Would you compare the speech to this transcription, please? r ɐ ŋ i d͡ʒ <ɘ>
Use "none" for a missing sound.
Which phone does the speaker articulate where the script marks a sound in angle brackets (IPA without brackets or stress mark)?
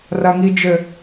ɘ